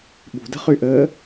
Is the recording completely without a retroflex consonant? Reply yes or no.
yes